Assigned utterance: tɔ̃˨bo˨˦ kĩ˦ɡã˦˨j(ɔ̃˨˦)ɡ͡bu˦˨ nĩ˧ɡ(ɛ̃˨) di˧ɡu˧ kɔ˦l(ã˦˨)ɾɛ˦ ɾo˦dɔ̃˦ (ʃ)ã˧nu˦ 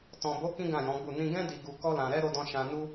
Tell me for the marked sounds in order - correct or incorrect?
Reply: correct, incorrect: ɛ̃˦, incorrect: ã˧, correct

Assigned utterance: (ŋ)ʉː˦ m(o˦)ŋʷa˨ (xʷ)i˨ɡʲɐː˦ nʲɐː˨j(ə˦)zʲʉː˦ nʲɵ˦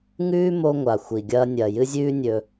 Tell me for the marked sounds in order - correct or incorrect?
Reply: correct, correct, correct, incorrect: ɨ˦

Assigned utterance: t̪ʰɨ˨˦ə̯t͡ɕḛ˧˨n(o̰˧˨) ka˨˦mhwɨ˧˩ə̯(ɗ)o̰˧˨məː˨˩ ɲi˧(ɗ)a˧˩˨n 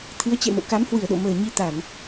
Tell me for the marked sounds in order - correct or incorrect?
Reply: correct, correct, incorrect: t̪

